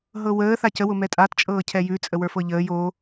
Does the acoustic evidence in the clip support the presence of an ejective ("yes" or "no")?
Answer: yes